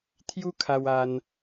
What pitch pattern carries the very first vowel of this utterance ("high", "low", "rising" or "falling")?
high